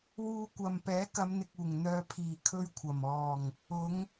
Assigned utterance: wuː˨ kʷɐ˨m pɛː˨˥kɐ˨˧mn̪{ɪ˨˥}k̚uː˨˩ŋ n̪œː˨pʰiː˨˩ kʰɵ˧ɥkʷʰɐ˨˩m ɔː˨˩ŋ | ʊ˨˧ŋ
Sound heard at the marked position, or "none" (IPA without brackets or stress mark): ɪ˨